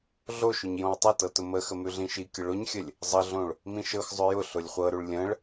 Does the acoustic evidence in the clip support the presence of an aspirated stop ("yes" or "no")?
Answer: no